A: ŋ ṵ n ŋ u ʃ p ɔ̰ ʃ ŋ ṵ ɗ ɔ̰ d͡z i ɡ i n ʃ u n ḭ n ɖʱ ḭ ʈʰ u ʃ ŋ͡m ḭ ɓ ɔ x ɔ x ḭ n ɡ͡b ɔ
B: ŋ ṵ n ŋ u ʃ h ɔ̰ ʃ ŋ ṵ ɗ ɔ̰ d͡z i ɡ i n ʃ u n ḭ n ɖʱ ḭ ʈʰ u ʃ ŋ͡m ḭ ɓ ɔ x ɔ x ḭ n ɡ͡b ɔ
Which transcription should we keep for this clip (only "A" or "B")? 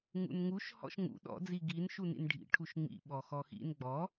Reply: B